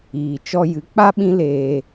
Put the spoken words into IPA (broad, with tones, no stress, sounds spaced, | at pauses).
iː˧ t͡ʃ ɔ˧ j ɨ˨˦ k͡p a˦ ɓ ĩ˦ l eː˧